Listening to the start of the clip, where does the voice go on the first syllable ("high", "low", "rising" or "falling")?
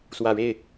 low